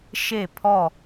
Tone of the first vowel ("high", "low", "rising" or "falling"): falling